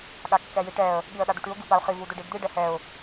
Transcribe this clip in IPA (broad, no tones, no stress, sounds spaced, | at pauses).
ɠ a kː ɛ j i ʈ ɛ ə̯ | ɠ i ə̯ ɗ a d̪ u ʈ ʉ ʊ̯ ɡ i p a ʊ̯ χ i v u d ʏ ɖ i d d̪ i ɖ ɛ h ɛ ʊ̯